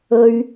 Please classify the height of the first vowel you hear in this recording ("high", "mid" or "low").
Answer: mid